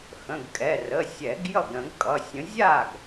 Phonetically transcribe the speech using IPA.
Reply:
x ə̃˩˧˩ ɡ kʼ ɛ˩˧˩ r ə˩˧˩ sʲ ɛ˨˩˦ ɡ j ʌ˥˩ ɡ ɾ ə̃˨˩˦ ɡ kʼ ʌ˩˧˩ sʲ ə̃˨˥ zʲ a˥˩ ɡ

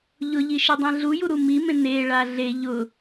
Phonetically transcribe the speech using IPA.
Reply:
ʎ ʊ ʎ i ʃ i dˤ ɛ̃ ɮ u j u ɾ u m i m ẽ n e ɭ a ɮ e ʎ ʊ

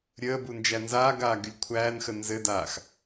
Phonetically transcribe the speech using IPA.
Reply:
ɾʲ əː b u n d͡ʒ æ n z aː ɡ aː ɡ y lʲ kʷʰ æː n x ə n z ɘ d aː x

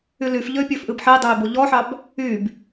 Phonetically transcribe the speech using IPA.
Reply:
y l y f ʎ ø pʲ ø f ʔ ɨ b ħ i dˤ ø i̯ b o ʎ ɔ ħ ɑ b | y b

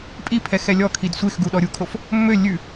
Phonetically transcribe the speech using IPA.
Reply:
pʼ i pʰ ɛ x ɛ lʲ ɔ kʰ i d sʷ e x ɡ u ɗ ɔ ɾʲ u kʰ o f | mː ø lʲ ʉ

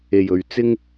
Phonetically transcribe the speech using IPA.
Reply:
e˨˩ j ɵ˨ ɥ t͡s ɪ˥ ŋ

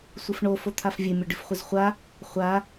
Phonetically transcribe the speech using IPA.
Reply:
sʷ ɨ f ɳ o f o t̪ʰ a f vʲ ɨ mʲ o ɖ ɨ f χʷ ɨ z χʷ a | χʷ a

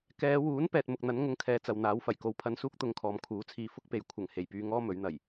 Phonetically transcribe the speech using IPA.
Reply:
k ɛː˨˧ w uː˨˥ n p ɛː˨ t̚ m ʊ˨ k̚ n̪ ɐ˨˥ n ŋ ʊ˧ ŋ kʰ ɛː˧ t͡s ɐ˨ w n̪ aː˨˥ w f ɐ˨˩ j k o˨˥ w pʰ ɐ˧ n s uː˥ k̚ t̪ ʊ˧ ŋ kʰ ɔː˨ m kʰ uː˨˥ t͡sʰ iː˧ f ʊ˥ k̚ p e˨ j kʷʰ ɐ˨˩ ŋ h e˨˩ j p yː˧ ŋ ɔː˥ m ɵ˨˥ ɥ n̪ ɐ˨˩ j

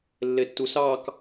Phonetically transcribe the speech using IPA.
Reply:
lː e tː u s ɑ k

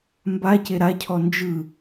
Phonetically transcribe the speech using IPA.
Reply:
m b a c e ɾ a cʰ ɔ n d͡ʒ ɯ

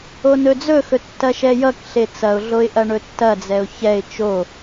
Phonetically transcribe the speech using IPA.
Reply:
o n ɵ d͡z ɵ x ɵ tː ɐ ʃ ɛ j ʌ k ɬ e t͡s ɐ ʊ̯ ɮ o ɪ̯ ʔ ɐ ɳ ɵ tː ɐ d͡z ɛ ʊ̯ ç ɛ ɪ̯ t͡ʃ o

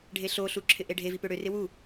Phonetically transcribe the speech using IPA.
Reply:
ɖʱ e ɬ o ɬ u ǁʰ ɪ ʔ e ɖʱ e v i p ø ɽ ø r ɪ w u

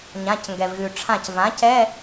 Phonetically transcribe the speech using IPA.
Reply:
ɲ ã˩˧˩ c ŋ ɡ ɛ˩ v ɣ ʉ˩ ʈ͡ʂʰ ã˧˩ c v ã˩˥ c ɛ˧˥˧

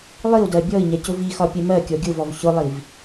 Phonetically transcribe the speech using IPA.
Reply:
lˠ i u̯ d ɜ bʲ ɔ i̯ ɲ ɛ c ʊ v i x ɒ pʲ ɛ m ɜ kʲ ɔ ɡʲ ʊ v ɔ v ç ʊ lˠ i v

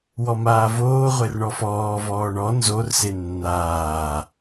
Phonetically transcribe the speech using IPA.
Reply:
w ɔ m aː v oː ʁʷ e r ɳ ɔ f ɔː v ɔː ɳ ɔ n z o r s e nː aː

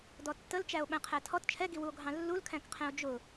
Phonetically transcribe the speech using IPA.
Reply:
d ɔ tː ə l t͡ʃ æ o̯ ɓ æ̃ qʰ æ tʰ ɔ t t͡ʃʰ ɛ ɡ i w u o̯ ɡʱ ɑ̃ lː u l kʰ æ̃ k qʰ ɛ̃ o̯ d͡ʒ ʊ

